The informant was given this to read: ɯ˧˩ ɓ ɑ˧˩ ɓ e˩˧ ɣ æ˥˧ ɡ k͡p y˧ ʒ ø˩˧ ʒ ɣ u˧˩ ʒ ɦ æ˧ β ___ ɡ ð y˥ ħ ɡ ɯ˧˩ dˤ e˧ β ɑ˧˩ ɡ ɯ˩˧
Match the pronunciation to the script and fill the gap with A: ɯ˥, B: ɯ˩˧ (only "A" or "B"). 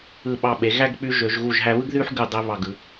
A